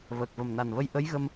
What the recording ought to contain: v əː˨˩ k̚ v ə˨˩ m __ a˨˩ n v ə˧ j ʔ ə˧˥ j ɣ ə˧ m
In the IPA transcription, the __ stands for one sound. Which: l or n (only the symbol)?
n